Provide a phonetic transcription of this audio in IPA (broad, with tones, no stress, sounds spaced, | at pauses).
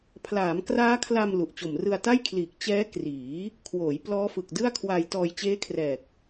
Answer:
pʰ l aː˩˦ m k r aː˦˥ kʰ l a˧ m l u˨˩ ʔ t͡ɕ o˨˩ m r ɯ˧ a̯ t a˥˩ j kʰ l iː˨˩ k̚ t͡ɕ ɛː˦˥ k r iː˩˦ | kʰ w oː˩˦ j p l ɔː˦˥ f ɯ˨˩ k̚ d ɯ˥˩ a̯ kʰ w a˧ j t ɔː˧ j t͡ɕ eː˦˥ kʰ r ɛː˨˩ k̚